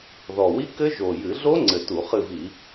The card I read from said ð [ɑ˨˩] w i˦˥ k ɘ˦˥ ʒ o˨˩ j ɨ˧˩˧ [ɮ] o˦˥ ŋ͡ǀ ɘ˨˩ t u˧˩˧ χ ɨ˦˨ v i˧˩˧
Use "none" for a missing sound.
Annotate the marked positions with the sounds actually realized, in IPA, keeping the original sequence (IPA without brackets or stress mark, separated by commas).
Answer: ɔ˨˩, ɮ